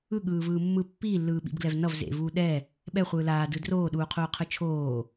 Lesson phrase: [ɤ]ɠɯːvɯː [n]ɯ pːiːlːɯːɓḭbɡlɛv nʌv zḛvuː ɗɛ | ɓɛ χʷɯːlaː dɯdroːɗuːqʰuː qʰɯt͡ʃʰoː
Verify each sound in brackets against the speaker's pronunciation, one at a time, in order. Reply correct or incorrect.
incorrect, incorrect

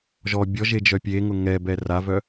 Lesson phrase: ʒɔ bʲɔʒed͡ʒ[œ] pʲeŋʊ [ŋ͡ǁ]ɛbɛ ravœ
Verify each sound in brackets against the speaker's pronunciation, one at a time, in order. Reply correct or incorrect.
correct, incorrect

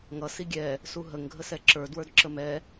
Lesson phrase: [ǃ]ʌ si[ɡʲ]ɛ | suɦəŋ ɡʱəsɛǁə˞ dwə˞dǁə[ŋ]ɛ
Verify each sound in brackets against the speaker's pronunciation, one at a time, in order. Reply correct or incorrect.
incorrect, correct, incorrect

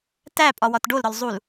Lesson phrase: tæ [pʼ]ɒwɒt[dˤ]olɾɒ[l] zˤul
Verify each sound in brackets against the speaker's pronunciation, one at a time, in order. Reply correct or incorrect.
correct, incorrect, correct

